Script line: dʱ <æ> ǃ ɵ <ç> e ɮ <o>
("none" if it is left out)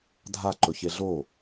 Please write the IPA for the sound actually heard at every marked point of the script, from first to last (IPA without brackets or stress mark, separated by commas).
a, ç, o